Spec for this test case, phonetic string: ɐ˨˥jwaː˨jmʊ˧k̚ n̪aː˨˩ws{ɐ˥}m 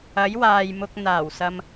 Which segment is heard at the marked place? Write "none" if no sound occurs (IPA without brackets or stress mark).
ɐ˧